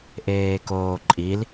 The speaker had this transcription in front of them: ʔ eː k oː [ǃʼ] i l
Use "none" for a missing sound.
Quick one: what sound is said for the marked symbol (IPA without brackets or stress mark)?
ǃʼ